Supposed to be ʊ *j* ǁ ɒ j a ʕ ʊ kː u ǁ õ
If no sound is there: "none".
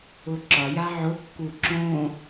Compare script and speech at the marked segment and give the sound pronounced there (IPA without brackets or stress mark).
none